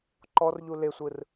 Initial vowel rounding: rounded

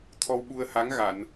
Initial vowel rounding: rounded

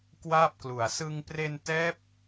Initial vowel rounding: unrounded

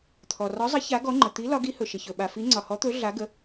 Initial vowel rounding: rounded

